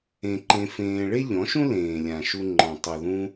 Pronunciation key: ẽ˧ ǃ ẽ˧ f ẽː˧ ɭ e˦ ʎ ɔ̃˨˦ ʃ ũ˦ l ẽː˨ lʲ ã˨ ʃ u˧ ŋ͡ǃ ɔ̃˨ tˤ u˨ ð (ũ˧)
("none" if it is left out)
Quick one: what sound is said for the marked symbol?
ũ˧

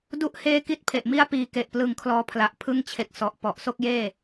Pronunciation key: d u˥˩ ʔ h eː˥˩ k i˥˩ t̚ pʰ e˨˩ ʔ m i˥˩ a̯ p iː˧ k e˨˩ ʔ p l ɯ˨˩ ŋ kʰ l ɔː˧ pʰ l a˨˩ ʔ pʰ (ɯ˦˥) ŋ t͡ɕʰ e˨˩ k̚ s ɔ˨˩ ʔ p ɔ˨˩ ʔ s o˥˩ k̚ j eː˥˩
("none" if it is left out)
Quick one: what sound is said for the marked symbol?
ɯ˥˩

